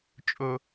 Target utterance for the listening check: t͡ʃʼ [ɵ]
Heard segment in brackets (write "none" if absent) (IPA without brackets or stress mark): ɵ